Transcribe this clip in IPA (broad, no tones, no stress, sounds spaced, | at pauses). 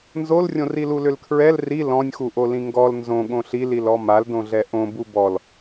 n z o l rʲ õ r i l u l ʏ l kʰ ɹ ɛ l r i l ɔ̃ nʲ x u ʔ o l ĩ ŋ ɡ ɔ l n z õ ɠ õ ɬ i l i l ɔ m a l d õ ɮ ɛ ʔ õ b u b ɔ l